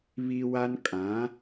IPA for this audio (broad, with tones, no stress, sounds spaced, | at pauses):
β i˦ w a˦ n kʼ ã˨˦